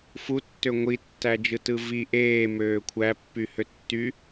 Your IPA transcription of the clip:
futːø ŋʷitːæd͡ʒɯtɯ vi ʔeːmøː kʷʰæpːyhø tːy

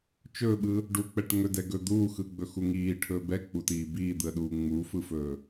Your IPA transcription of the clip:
t͡ʃɵːɓɯ | ɖuk͡pɛʈ ŋɵdɛɡɵ d̪uːxɯɡ͡bɵxu ŋiːʈʰɵː bɛk͡putiː biːd̪ɯə̯ɗuː ŋ͡muːfɯfɵː

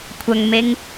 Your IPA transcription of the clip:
kʷʰɐŋmeŋ

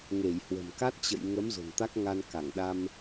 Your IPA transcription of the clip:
ŋe˧˩jhwə̤˨˩mka˦˥t̚ t͡ɕə̰˧˨jŋə˨˦m zo̤˨˩nt̪a˦˥k̚ ŋa˧n ka˧˩ŋ ɗa˧m

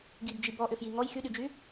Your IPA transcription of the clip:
ɡibd͡ʒi bɔʔʏfji ŋɔj xyɗyd͡ʒy

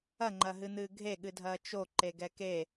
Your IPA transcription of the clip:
ɐŋ͡ǃɐɦɨn̪ɨː ɡʱeɠɨdʱɐː t͡ʃo ǃeɡɛke

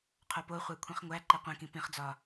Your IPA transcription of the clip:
qʰopoχʷæ kʷʰĩχŋʷæǃe qʷĩkĩ pĩχd͡zɒ

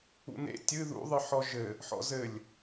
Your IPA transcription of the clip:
ṵnḛ tʲɨ ðṵðˤɨ ħɔʒɘ | ħɔ̰zɘlʲ

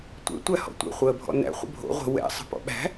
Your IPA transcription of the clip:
tʷɛ̰ tʷæhɔ̰tʷɛ̰ χʷəːbʱɔ̰næ̰ χʷə̰bʱo̰ ʁʷə̤ wɛ̰ sˤə̤pɔ̰ɓæ̤

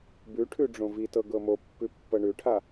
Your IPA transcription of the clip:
bʉʈʰʉ ɖ͡ʐõvitɤ ɡɤmopːʉ pːɤɳʉʈʰa

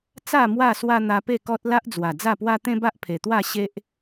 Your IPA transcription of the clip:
t͡sa˥˧ mwa˥˧swa˦ n̪a˧pe˥˧kɔ˦t̚la˦ʔ d͡zwa˨˩d͡za˥˧pwa˦ t̪ẽ˦ba˦ʔpʰe˨˩t̪wa˥˧ ɕe˦ʔ

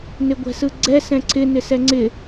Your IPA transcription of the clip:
nɪɡʷɛ̤sɯɡ͡ǀɛ sɛ̃ǀʰɪ nɪsɛŋ͡ǀɪ

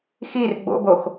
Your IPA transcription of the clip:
xir ɡ͡bo̰box

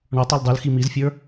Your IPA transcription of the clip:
ɳɔtˤ oldˤɯlxi mizfʲə˞

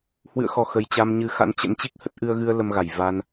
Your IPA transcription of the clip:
hwɨ̰˧˨ə̯xɔ˧˩ xə˨˩jt͡ɕa˧mɲɨ˧ xa̰˧˥nt͡ɕə̰˧˥n t͡ɕi˦˥k̚hə˦˥t̚ ʔɨ˧ə̯ɣɨ˧ə̯ lə˧mɣa˧˩j va˧n

